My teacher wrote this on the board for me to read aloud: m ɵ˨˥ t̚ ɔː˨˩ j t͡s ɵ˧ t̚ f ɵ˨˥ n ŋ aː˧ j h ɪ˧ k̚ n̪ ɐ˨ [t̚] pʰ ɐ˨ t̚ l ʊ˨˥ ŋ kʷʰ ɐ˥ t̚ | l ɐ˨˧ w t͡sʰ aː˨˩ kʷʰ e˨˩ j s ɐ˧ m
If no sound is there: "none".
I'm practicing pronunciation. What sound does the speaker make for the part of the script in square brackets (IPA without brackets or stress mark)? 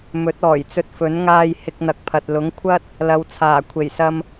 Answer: k̚